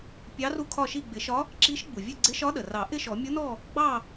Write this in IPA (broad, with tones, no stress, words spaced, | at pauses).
pʲɑ˧˥ ru˥˨kʰɒ˥˨ʃi˥˨ ɡ͡bɪ˨˩˦ʃɒ˧˥ | ǁi˧˥ʃɡ͡bu˩vʲə˥˨ ɡ͡ǀɪ˧˥ʃɒ˧˥ɗə˩rɑ˨˩˦ ʔɪ˥˨ʃɔ˨˩˦mʲʊ˧˥nɔ˥˨ | ɡ͡bɑ˥˨